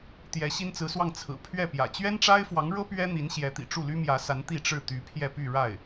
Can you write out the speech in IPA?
t̪ j ɛ˧˥ ɕ i˥ n t͡s ɹ̩˧˥ s w ɑ˥˩ ŋ t͡sʰ ɹ̩˨˩ pʰ ɥ ɛ˥˩ p j ä̰˨˩ t͡ɕ ɥ ɛ˥ n ʈ͡ʂ a˥ ɪ̯ f w ɑ˧˥ ŋ ɻ ɤ˥ p ɥ ɛ˥ n̪ i˧˥ n ɕ j ɛ˧˥ t̪ ḭ˨˩ ʈ͡ʂ u˥˩ l y˥ m j ä˧˥ s a˧˥ n t̪ i˥˧ ʈ͡ʂ ɻ̩˥˩ t̪ y˧˥ pʰ j ɛ˥˧ p y˥˧ ɻ a˥˩ ɪ̯

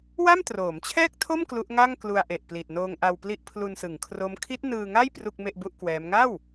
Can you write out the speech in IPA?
w a˥˩ m t r oː˩˦ m t͡ɕʰ ɛː˥˩ k̚ tʰ o˥˩ m k l u˦˥ ʔ ŋ a˥˩ ŋ k l u˧ a̯ ʔ e˨˩ ʔ p l i˨˩ t̚ n oː˧ ŋ ʔ a˧ w p l i˦˥ ʔ pʰ l u˧ n s ɯ˩˦ ŋ kʰ r o˦˥ m kʰ i˦˥ t̚ n ɯː˧ ŋ a˥˩ j p r u˥˩ k̚ m e˥˩ ʔ b u˥˩ ʔ k w ɛː˦˥ m ŋ a˥˩ w

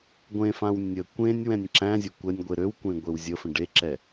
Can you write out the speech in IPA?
ɡʷ ẽ f ã w nʲ ə kʷ ẽ nʲ w ɛ̃ nʲ ǁ æ̃ zʲ ə kʷ ɛ nʲ ɡʷ e ɾ ø w kʷ ẽ ɡʷ e w zʲ ə f ə̃ ɖ e ǁ ɛ

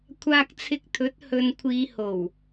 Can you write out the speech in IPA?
kʷʰ aː˧ k̚ t͡sʰ ɪ˧ k̚ t̪ʰ ɵ˨˥ t̚ h ɵ˨ n kʷʰ iː˨˧ h o˨˩ w

